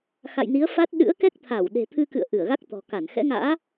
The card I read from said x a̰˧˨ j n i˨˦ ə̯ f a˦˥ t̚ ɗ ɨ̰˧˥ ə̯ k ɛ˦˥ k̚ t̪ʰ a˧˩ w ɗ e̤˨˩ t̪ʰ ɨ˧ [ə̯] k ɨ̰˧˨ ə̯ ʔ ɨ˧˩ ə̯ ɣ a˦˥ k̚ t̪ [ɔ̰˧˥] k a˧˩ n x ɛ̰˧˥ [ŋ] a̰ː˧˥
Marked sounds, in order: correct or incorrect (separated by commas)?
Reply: incorrect, incorrect, correct